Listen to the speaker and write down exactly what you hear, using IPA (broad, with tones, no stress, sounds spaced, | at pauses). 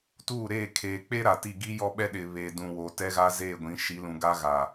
t uː˦˨ ɾ eː˦˨ kʰ eː˨ k͡p e˦ ɾ a˨ t i˦˨ ɡ i˦ j ɔ˦ ɓ ɛ˦ ɗ ɪ˨ β eː˨ d ũ˨ w o˨ t ɛ˦ ɣ a˦ z eː˦˨ ɡʷ ĩ˨˦ ʃ i˨˦ l ũ˨ ɡ a˦ ɣ a˨